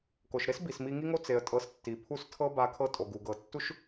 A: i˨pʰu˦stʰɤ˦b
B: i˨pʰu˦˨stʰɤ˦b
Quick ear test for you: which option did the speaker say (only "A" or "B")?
B